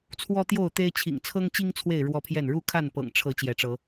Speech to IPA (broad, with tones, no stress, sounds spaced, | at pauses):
t͡sʰ w ɔ˦ t̪ j o˥˨ ʊ̯ t̪ e˦ ɪ̯ t͡ɕʰ ḭ˨˩ ŋ t͡sʰ ɤ˦ ŋ t͡ɕ i˦ ŋ t͡sʰ w e˥˨ ɪ̯ ɻ w ɔ˦ pʰ j ɛ˥˨ n ɻ u˥˨ kʰ a˥˨ n p ɤ̰˨˩ ŋ ʈ͡ʂʰ ɤ˨˦ t͡ɕ j ɛ˨˦ ʈ͡ʂ ɤ˨˦